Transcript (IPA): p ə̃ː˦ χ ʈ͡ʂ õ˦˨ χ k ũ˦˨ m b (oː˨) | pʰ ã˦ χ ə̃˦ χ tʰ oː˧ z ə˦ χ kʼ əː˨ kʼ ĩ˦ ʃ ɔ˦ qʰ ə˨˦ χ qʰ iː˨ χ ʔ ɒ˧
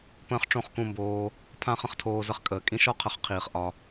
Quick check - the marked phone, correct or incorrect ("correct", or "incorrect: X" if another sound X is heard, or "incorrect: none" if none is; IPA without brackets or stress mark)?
incorrect: oː˧